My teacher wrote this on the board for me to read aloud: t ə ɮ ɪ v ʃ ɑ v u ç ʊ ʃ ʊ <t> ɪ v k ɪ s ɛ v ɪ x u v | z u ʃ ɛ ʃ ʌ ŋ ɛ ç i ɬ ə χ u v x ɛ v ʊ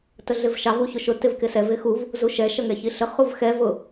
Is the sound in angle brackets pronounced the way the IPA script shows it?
yes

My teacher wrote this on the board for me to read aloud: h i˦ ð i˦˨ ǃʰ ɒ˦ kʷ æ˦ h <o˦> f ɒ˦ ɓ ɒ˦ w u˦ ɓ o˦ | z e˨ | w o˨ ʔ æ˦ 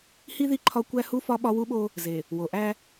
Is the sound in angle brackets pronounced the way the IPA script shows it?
no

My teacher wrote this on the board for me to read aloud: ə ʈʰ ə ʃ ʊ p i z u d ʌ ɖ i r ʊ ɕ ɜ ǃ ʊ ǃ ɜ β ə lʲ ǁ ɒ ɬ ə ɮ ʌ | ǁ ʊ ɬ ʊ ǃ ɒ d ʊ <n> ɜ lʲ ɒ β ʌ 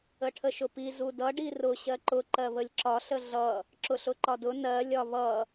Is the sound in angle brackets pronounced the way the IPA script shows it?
yes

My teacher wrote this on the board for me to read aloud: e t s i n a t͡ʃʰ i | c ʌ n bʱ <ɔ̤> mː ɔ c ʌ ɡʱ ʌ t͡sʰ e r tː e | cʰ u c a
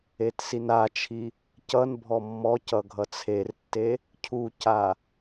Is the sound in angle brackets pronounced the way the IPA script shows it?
no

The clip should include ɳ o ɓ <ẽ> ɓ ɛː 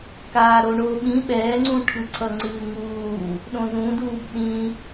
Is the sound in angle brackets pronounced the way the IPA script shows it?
no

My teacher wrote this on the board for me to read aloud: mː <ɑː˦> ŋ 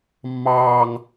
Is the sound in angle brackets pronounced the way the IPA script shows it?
yes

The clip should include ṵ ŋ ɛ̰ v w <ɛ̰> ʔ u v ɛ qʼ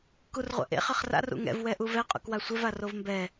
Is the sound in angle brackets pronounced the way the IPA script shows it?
no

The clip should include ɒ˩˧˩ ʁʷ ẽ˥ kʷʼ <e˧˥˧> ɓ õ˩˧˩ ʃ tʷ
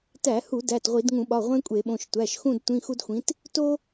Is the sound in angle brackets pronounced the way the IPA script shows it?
no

